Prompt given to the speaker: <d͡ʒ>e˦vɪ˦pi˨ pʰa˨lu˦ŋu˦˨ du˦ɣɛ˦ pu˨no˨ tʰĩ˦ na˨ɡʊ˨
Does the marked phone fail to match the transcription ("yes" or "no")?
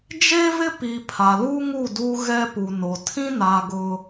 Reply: no